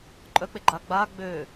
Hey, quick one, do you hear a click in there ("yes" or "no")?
yes